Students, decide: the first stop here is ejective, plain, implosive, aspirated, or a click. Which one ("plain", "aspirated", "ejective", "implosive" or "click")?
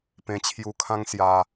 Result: plain